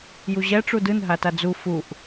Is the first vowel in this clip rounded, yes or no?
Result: yes